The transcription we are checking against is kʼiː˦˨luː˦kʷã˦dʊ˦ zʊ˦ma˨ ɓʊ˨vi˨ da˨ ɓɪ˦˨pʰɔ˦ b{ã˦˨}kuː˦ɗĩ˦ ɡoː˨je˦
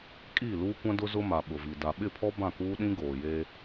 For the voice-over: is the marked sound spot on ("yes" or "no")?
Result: yes